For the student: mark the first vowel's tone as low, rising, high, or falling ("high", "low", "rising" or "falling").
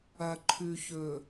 low